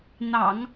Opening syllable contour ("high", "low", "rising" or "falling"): low